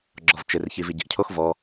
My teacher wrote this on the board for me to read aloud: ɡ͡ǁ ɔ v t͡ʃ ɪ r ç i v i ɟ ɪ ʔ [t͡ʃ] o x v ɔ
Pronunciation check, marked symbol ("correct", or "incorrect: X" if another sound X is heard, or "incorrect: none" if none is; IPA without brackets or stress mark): incorrect: cʰ